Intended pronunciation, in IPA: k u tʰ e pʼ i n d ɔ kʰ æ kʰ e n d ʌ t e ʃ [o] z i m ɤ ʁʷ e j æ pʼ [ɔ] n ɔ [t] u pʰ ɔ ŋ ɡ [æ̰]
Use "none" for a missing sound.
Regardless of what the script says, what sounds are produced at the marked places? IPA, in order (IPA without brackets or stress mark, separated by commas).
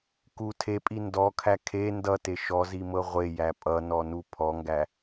ɔ, ʌ, n, æ